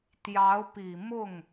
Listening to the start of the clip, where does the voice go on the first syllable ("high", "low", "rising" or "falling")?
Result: rising